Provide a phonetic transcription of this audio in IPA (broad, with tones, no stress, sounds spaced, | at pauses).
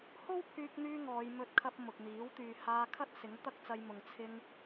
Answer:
h o˥ w pʰ yː˧ k̚ n̪ yː˧ ŋ ɔː˨˧ j m ɵ˧ t̚ kʰ ɐ˧ p̚ m ʊ˨ k̚ n̪ iː˨˥ w t̪ yː˨ h aː˧ kʰ ɐ˥ t̚ s ɪ˨˥ ŋ t̪ ɐ˥ k̚ t͡s ɐ˧ j m ʊ˨ ŋ t͡sʰ ɪ˧ ŋ